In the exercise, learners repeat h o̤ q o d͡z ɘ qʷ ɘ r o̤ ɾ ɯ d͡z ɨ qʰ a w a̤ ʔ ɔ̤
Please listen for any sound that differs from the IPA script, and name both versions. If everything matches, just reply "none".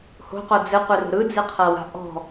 none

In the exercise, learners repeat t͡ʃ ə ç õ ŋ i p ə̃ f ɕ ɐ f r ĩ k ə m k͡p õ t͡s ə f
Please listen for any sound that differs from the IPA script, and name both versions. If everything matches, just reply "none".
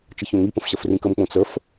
none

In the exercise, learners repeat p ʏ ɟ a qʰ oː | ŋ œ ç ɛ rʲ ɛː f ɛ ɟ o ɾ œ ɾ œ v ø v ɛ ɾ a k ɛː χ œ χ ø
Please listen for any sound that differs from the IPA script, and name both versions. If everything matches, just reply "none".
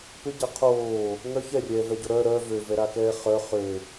f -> v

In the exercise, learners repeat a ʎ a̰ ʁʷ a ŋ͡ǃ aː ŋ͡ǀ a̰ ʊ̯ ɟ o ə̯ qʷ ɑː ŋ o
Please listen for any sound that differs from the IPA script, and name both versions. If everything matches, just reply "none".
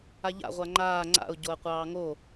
none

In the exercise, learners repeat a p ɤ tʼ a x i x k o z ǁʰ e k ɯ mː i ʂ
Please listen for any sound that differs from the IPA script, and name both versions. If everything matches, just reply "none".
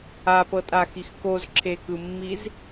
ʂ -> z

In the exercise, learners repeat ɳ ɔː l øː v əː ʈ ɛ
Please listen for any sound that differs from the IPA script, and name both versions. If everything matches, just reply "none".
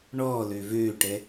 əː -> øː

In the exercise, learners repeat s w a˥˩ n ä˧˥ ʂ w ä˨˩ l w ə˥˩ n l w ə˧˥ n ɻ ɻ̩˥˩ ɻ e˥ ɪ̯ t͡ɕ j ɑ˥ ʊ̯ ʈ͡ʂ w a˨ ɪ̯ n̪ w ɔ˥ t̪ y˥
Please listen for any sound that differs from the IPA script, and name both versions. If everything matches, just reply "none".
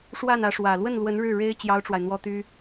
s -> ʂ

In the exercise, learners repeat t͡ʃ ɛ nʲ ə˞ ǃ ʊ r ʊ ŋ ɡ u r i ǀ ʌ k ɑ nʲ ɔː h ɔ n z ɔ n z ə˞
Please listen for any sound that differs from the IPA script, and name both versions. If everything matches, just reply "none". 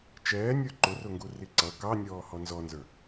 ɛ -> ɛː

